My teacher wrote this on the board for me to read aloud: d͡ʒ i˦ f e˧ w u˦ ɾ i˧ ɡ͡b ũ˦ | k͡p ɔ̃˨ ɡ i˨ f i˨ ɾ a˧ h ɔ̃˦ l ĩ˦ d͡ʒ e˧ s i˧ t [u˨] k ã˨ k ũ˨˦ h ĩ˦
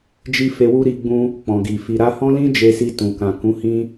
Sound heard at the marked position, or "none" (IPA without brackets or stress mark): ũ˨